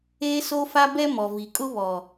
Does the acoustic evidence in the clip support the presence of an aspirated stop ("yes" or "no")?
no